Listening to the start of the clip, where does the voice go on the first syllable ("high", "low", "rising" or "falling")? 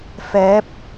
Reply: rising